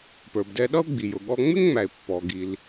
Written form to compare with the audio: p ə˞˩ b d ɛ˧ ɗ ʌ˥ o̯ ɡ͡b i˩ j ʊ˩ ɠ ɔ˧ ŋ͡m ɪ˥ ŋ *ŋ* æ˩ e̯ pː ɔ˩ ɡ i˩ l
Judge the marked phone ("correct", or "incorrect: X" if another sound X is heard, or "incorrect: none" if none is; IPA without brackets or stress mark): incorrect: ŋ͡m